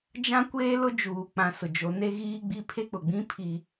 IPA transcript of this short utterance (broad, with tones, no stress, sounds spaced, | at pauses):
d͡ʒ ã˦ kʷ eː˦ l ʊ˦ d͡ʒ uː˨ k͡p ã˨ s ʊ˨ d͡ʒ o˨˦ n e˦ ɣ iː˦ ɡ͡b i˦ pʰ e˦ k͡p ʊ˨ ɡ͡b ĩ˦ pʰ i˦